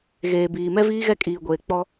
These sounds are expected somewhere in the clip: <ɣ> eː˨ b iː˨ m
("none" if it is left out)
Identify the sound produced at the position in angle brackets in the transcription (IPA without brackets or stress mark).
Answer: ɣ